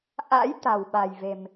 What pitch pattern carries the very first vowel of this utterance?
rising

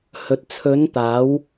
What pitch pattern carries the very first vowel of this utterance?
low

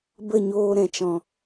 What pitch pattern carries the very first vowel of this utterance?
falling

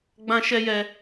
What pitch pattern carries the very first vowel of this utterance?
high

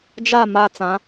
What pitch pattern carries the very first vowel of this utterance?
falling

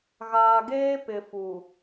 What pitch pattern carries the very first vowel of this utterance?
low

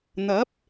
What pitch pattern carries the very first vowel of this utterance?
rising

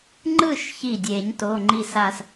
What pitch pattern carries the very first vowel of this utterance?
falling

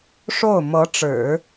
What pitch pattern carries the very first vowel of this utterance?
falling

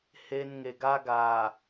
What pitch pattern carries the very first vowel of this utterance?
high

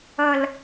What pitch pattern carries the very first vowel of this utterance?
low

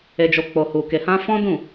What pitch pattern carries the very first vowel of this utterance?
low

